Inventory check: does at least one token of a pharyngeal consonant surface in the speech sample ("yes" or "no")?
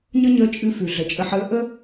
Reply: yes